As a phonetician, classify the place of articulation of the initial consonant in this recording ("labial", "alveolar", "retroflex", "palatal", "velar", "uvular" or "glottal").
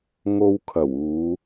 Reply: velar